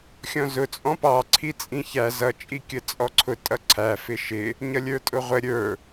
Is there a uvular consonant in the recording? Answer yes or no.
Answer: yes